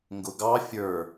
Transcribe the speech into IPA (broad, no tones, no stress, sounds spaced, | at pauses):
ŋ ɡ ʊ ɡ ɑ fʲ ə˞